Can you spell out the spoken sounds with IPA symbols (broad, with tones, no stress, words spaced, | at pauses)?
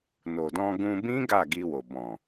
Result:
no˨dɔ̃˧ ɡũ˧bĩ˦ ɡa˦˨ɡi˧wo˨ bɔ̃˨